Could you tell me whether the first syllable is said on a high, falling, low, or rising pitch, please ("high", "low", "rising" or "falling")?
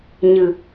low